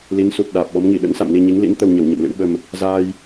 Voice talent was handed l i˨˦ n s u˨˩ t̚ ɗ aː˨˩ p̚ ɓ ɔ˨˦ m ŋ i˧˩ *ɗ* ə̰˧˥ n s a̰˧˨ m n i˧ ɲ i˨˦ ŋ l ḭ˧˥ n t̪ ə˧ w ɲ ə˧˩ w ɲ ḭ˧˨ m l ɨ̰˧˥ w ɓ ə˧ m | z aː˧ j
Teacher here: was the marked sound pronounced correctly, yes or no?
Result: yes